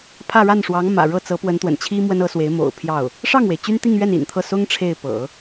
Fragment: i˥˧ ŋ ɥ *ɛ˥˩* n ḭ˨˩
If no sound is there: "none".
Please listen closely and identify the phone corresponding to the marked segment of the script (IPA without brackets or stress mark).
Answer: ɛ˥˩